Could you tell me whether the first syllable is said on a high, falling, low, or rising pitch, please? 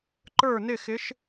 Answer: falling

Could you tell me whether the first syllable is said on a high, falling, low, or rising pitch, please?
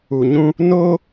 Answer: low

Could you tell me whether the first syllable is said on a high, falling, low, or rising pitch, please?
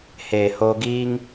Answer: low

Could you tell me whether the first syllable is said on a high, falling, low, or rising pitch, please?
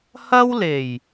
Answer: high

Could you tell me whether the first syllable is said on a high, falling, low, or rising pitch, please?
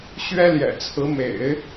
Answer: high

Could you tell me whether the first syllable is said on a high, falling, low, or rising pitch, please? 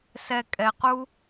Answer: low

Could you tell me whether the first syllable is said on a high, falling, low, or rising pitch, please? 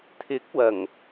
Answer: rising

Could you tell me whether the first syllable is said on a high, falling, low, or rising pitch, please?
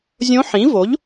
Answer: rising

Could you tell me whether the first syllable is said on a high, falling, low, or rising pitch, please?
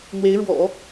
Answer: rising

